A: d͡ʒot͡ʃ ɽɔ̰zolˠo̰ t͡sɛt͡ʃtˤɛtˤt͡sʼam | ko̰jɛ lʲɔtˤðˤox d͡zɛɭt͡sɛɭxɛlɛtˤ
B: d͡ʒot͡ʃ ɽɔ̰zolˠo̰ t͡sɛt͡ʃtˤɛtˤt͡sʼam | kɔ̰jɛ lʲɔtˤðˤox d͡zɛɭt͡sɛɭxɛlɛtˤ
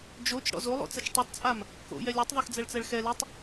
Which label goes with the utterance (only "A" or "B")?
A